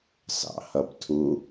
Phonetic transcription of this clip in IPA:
sɑ̰hʌbtʰu

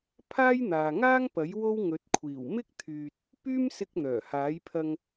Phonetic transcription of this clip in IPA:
pʰaː˥jn̪aː˨ŋaː˥ŋpɐ˨˥j wo˥wŋɵ˨˥t̚kʷʰiː˨˩w mɪ˥k̚t̪ʰyː˨t̚ | pyː˥msɪ˧k̚ n̪œː˨˩ haː˨˥jpʰɐ˧ŋ

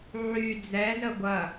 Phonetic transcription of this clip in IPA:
ʕy d͡zɛzə ɡʷɐ

